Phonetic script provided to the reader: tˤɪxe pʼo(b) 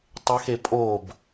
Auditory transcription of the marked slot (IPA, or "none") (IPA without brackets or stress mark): b